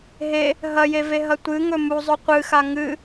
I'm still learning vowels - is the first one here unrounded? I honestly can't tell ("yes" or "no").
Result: yes